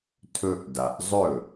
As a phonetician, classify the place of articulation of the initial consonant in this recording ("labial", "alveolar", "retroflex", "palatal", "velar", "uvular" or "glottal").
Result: alveolar